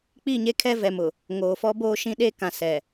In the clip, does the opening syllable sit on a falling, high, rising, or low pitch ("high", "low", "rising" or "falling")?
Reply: falling